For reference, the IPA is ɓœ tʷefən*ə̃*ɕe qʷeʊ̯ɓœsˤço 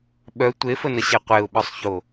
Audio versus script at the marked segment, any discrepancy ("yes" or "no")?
yes